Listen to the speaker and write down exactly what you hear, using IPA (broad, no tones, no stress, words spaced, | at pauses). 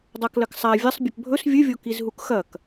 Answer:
dˤaklɐksˤa vʲɐsˤ bʲɵpbʱɵs vʲɨvʲo kizɦukxɐk